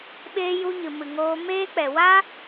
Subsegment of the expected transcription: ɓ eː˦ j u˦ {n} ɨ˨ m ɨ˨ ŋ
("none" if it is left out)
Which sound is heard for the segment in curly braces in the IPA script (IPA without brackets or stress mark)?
ɲ